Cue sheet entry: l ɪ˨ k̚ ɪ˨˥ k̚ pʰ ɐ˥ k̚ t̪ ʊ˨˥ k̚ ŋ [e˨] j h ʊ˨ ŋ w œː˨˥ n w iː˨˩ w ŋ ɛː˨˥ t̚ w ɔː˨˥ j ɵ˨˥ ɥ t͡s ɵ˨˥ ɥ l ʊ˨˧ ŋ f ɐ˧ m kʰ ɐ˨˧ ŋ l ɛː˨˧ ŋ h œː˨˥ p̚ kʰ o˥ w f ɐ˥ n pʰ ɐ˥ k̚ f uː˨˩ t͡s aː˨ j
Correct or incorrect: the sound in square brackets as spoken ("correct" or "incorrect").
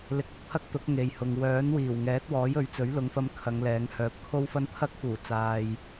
correct